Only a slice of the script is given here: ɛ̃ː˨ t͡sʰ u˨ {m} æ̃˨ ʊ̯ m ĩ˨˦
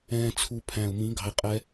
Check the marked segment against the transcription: incorrect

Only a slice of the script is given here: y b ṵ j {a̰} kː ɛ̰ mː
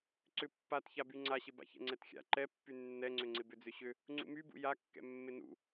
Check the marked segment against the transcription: incorrect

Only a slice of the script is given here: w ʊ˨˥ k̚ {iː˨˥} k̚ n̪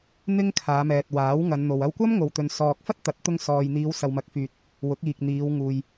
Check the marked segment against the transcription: incorrect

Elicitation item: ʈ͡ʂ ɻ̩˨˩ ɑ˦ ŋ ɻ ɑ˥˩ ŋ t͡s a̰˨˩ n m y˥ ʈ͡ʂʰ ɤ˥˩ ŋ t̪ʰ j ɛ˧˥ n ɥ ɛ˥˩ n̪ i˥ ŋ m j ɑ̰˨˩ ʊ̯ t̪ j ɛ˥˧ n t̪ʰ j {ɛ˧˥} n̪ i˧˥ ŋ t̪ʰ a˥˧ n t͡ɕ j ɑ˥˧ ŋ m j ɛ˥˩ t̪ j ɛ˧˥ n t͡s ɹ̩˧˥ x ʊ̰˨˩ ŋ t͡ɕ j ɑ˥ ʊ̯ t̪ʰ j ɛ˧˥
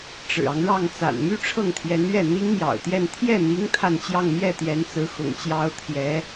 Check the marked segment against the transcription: incorrect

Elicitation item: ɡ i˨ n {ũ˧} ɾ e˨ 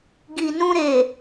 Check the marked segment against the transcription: correct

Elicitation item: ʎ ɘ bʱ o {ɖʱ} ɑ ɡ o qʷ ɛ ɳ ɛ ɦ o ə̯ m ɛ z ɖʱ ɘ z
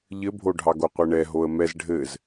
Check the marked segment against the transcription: correct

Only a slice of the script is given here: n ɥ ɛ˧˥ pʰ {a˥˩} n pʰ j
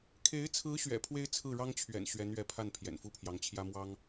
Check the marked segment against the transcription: correct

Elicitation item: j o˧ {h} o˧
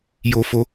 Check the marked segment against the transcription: incorrect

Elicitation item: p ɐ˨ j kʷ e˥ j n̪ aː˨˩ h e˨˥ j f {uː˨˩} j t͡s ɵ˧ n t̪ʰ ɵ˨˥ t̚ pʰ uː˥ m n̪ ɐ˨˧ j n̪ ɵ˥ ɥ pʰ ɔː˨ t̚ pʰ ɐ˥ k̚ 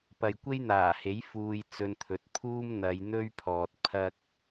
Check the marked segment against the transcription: incorrect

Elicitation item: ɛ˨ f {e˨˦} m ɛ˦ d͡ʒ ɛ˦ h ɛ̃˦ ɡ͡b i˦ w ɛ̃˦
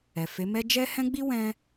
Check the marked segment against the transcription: correct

